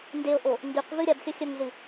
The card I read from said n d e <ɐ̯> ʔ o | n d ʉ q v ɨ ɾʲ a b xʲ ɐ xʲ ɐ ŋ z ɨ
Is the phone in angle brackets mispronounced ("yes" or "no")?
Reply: yes